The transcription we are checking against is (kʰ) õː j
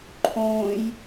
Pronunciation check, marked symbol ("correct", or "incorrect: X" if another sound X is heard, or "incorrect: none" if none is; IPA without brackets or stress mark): incorrect: ǃʰ